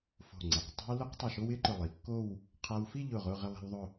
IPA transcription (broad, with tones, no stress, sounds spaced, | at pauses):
f o̤˧˩ ŋ͡ǀ e˩˧ q tˤ a̤˥ w l ʊ˥ q tˤ ɪ˧˩ ʃ o˥ w ɪ˥ ǃ ʊ˧˩ lˠ i˩˧ kː o˥˧ w | qʰ a˧ w f i˥˧ ʎ ʊ˧˩ ʁ ʊ˥˧ ʁ ɪ˥˧ lˠ a̤˥ w ðˤ ʊ˥˧